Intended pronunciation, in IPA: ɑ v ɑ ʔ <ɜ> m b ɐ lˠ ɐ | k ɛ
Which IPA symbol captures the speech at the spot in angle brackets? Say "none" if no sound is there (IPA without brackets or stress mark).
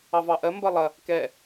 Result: ɜ